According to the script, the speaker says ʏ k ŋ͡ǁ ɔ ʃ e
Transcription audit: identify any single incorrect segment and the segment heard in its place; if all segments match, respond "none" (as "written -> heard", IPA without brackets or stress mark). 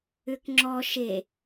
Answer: none